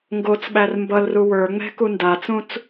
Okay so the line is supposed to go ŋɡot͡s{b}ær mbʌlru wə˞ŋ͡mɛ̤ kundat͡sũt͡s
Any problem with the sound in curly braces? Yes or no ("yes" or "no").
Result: yes